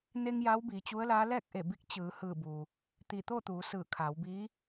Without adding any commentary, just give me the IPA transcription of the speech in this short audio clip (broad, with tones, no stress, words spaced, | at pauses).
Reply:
ne˧ŋ ja˧˥wbiː˩˧t͡ɕu˧˥ə̯laː˧˥ lɛː˥˨k̚ʔe˧˩bi˧˥k̚ t͡ɕɯː˩˧hɯː˧˩buː˩ | t̪i˧˩t̪o˥˨t̪uː˩˧ sɯː˧˩kʰaː˩˧w biː˧˥